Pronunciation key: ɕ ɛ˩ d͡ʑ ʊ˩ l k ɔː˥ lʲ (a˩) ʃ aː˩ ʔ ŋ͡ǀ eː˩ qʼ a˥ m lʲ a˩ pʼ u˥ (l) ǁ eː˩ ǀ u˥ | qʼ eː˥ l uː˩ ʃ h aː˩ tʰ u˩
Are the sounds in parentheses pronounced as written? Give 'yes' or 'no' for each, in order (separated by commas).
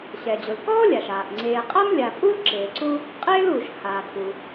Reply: yes, yes